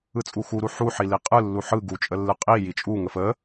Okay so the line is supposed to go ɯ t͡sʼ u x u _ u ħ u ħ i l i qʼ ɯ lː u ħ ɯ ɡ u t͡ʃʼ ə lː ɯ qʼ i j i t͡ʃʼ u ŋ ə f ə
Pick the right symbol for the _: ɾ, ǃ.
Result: ɾ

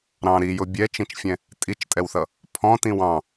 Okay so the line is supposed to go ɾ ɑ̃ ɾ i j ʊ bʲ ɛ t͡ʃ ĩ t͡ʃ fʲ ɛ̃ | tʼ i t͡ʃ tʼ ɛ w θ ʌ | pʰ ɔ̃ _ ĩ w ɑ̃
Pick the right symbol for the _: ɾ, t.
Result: t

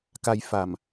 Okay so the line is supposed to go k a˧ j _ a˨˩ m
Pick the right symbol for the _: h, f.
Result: f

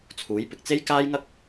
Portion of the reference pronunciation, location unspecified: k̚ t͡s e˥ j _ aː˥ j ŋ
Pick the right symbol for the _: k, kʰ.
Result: k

